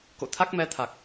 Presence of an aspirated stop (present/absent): present